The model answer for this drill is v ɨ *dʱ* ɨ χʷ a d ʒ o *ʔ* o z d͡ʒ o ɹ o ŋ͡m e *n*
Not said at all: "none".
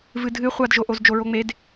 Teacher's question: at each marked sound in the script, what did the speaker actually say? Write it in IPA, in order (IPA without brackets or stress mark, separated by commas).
dʱ, ʔ, d